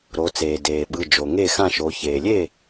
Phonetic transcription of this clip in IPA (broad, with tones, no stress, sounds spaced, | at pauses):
ɾ o˩˧ t͡s eː˩ d eː˩ ɓ ɯ˩˧˩ d͡ʒ o˩ ŋ e˥˩ x ã˥˩ ʃ o˩˧ ç eː˩ lʲ e˥˩